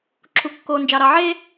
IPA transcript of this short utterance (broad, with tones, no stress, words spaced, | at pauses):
ǁʰu˨kːoː˨ nd͡ʒɑ˨ɾɑ˨ʕeː˦